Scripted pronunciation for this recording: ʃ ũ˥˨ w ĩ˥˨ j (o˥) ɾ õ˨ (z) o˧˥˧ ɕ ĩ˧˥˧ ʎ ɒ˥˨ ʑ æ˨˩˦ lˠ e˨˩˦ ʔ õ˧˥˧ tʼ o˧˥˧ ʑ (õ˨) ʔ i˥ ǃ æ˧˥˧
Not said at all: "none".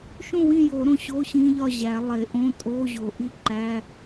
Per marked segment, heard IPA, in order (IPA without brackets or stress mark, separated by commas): o˨˩˦, ɕ, o˨